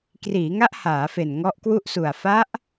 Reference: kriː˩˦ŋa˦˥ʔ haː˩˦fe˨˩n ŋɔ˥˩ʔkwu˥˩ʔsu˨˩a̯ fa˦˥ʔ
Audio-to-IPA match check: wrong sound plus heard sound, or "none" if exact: ɔ˥˩ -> ɔ˦˥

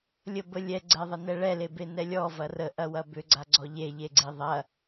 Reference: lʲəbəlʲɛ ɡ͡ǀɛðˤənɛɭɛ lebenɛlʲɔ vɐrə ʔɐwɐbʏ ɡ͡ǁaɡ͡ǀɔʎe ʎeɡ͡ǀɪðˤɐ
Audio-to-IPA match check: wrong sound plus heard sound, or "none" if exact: ɡ͡ǁ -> ɡ͡ǀ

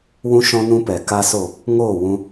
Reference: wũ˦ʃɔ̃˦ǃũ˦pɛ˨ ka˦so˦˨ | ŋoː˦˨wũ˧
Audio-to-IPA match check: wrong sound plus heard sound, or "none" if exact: ǃ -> n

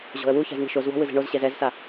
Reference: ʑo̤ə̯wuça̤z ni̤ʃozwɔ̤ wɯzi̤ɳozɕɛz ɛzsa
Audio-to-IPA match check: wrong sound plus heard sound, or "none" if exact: none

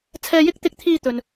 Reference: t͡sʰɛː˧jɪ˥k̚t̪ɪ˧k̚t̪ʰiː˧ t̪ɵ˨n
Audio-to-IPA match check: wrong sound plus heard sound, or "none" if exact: none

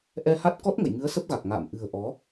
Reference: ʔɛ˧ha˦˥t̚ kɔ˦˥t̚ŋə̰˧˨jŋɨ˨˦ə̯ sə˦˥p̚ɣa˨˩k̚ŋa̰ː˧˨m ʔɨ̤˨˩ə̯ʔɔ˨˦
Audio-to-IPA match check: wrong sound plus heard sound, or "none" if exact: none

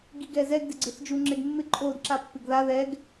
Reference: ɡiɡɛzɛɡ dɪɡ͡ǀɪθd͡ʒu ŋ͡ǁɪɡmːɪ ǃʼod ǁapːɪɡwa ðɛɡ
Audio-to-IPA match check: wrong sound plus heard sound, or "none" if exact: w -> ð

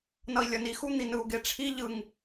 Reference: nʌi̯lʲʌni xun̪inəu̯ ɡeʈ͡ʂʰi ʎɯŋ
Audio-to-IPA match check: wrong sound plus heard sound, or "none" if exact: ə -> ɯ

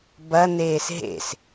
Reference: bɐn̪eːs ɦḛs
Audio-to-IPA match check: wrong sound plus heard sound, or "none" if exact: none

